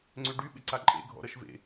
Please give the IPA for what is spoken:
ŋ͡ǀʏɖy ɓɪǀaǃʼḛ ɡʱɔ̰ɾʌʃvḛ

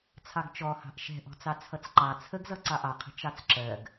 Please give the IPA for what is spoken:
t͡sʰɑɡt͡ʃɔhɑ̤ʔ ʃɛ̤ʔɔ̤t͡sɑ t͡sʰʌt͡sǃɑ t͡sʰəɡzʌ ǀɑʔɑqʰə̤ t͡ʃɑt͡sǁɜɡ

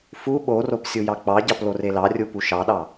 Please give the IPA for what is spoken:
fu ɓorop sʲujɑk͡pɑɟɑp lorelɑrʲu puʃɑɗɑ

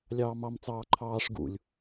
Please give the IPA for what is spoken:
lʲɑːmɑm t͡sɑːǃʰɑːʂ ɡṵlʲ

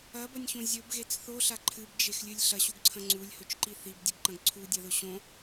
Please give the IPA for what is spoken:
ɐbɐnʲçõ zʲɵbɣet͡s θoɬa ǃʰɨbd͡ʒexlʲɨlʲ ɬɐɕuɡǀʰɐ̃ ŋ͡ǀulʲhɵt͡ʃǃi θibdʲɨɡǃɐ̃ɡ ǀʰudʲɐðɵ ɕõ

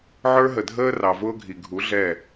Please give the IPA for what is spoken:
ʕə˞˦ɦə˨dʱəː˦ rɑ˨vʊː˦ɡʱi˨ ɡʱu˨˦ɮɛ˦˨

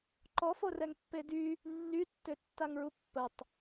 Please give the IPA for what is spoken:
ǃɔforɛŋ pːedy | nːytːø tːaŋɹupːətˤ

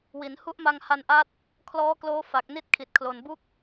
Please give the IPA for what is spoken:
wi˩˦n hu˦˥ʔma˧ŋha˧nʔa˦˥t̚ | kʰlɔː˦˥kloː˦˥ fa˨˩k̚ni˥˩t̚ kʰi˨˩t̚kʰlo˨˩nbu˥˩k̚

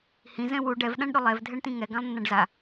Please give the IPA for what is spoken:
hĩ zɛ̃wu ɖɛv ɗãɳɗʊlˠɛv dʱɛɳtĩŋɛ ɡãlˠnːãɖza

